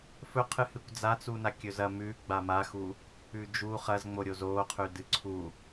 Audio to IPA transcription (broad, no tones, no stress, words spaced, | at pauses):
fɵqʰɨhɨkʷ d͡zat͡suna kʲɵzɐ mʉ ɡ͡bamaxu | ʉd͡ʒu χɐzŋ͡moɾʲoz oqʰʉdɨ ǀʰu